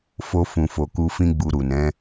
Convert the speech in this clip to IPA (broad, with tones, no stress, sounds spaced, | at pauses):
f o˧ f ũ˨ f o˨ k u˧ f ĩ˦ ɡ͡b u˧ ɾ u˨ n ɛ̃˨˦